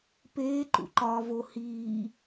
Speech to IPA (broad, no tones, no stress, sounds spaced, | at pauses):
p eː ǃ ṵ ǃ ɒː v o h iː